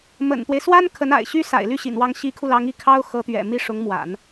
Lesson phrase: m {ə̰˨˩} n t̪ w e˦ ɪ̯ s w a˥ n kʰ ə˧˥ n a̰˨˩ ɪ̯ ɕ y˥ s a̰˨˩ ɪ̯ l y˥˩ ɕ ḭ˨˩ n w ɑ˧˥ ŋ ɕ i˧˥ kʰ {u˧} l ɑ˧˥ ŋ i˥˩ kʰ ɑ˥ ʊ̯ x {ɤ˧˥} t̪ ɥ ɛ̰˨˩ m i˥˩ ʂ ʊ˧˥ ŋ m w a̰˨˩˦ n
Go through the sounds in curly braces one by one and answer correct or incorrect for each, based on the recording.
correct, correct, correct

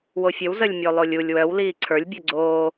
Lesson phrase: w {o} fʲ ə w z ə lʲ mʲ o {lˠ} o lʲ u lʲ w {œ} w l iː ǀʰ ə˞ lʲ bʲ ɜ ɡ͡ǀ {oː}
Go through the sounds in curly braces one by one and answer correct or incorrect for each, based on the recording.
correct, correct, correct, correct

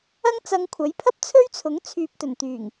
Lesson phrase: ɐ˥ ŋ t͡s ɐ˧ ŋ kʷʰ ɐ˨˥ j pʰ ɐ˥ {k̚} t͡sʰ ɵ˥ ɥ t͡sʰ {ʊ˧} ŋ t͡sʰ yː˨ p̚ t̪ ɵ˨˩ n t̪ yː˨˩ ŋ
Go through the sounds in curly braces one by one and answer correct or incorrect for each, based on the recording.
incorrect: p̚, incorrect: ʊ˨˥

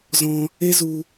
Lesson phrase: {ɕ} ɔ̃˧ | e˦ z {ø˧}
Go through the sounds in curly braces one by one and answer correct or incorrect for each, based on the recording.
incorrect: z, incorrect: u˧

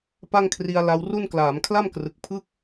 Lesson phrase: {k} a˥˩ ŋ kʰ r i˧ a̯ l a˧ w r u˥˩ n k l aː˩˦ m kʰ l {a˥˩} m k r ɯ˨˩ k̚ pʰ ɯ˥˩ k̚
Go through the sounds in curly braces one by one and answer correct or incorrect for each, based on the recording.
incorrect: p, correct

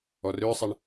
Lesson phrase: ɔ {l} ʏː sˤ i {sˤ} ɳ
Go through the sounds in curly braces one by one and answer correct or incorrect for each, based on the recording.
incorrect: r, incorrect: none

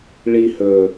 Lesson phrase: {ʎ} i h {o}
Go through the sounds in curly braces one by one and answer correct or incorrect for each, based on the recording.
incorrect: ɭ, incorrect: ɵ

